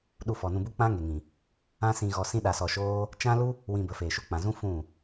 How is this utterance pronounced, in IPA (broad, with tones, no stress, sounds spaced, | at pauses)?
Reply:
ɗ u˧ f ɔ˨ n ũ˧ b u˦ k͡p ã˦ ŋ e˨ ŋ ĩ˨ | ã˦ s ĩ˧ ɣ ɔ˧ s ĩ˦ ɗ a˧ s ɔ˧ ʃ oː˦ | t͡ʃ ã˦ l u˦ | w ĩ˧ b ə˨ f eː˨ ʃ u˧ k͡p ã˨ z ũ˦ f ũ˦˨